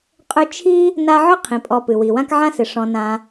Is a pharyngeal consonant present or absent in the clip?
present